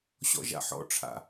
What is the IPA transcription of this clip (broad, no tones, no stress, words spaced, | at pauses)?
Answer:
ɕɔ̰ʒa̰ħɔ̰ ʈ͡ʂʰa̰